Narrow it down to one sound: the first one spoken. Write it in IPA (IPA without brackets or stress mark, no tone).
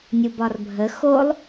nʲ